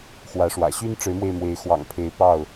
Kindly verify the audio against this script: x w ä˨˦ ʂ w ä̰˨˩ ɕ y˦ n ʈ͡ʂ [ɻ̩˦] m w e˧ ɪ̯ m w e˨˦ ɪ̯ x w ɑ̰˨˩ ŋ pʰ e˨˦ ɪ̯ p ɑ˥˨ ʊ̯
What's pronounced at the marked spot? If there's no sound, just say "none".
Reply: ɻ̩˨˦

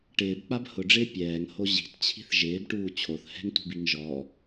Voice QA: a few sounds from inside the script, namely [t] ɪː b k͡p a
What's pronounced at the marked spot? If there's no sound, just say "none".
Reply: ʈ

